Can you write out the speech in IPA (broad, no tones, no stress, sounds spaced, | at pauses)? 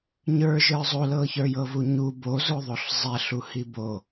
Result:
ɲ ə˞ ʒ ə˞ zˤ o l ɤ ç ə˞ j ɤ v u ɲ u b o z o ðˤ o ɬ zˤ ɛ ɬ u h i b o